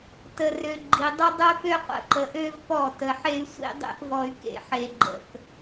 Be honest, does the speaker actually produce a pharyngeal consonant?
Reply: yes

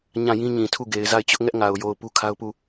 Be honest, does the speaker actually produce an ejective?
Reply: no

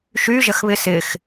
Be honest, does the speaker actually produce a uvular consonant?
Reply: no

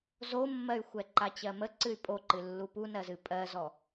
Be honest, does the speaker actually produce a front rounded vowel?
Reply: yes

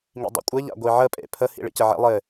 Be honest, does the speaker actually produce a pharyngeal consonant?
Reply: yes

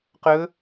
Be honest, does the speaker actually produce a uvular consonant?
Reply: yes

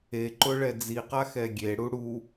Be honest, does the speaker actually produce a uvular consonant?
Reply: yes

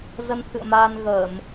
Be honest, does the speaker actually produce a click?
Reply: no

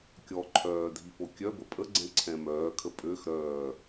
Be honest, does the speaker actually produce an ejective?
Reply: yes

